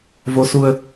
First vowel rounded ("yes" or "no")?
yes